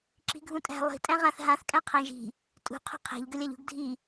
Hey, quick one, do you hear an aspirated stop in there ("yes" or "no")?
yes